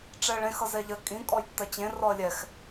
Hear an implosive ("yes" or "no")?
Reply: no